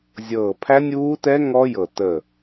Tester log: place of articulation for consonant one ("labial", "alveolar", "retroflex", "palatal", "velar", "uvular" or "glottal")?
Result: alveolar